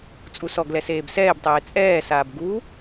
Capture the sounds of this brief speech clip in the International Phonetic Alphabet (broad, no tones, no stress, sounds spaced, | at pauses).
t͡sʼ u s ɔ ɡ l ɛ s eː b s ɛː b tˤ eː t͡sʼ ɛː s aː b ɡ u